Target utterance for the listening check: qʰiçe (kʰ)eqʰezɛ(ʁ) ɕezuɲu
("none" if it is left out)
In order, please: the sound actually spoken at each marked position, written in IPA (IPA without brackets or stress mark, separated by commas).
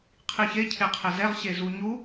cʰ, ʁ